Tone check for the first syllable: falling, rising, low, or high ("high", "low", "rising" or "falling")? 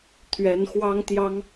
rising